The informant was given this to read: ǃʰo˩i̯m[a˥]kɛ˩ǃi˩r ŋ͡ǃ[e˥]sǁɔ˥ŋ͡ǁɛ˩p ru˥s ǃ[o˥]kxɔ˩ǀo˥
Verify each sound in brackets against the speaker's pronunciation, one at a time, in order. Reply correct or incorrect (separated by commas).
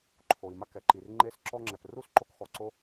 correct, correct, correct